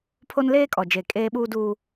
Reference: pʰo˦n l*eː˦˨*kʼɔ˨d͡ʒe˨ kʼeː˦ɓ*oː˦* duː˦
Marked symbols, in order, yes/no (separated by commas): no, no